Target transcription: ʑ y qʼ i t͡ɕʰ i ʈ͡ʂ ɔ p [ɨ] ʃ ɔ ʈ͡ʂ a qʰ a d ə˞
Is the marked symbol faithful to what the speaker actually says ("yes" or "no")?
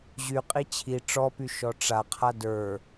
no